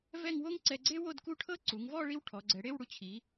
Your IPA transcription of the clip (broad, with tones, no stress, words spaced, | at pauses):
vɛ˥˧ŋwo˥ŋǀɛ˧ɡ͡ǀe˥ wo˥˧dku˥˧ʈʰɤ˥ ǀu˩˧ŋvɔ˥˧ ɭi˥wʈʰɔ˩˧ɡ͡ǀɛ˩˧ ɽe˥˧wɽu˧t͡ɕʰi˩˧